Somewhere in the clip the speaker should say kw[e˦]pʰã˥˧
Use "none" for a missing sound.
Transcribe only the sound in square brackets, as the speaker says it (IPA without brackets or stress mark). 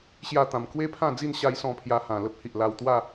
e˦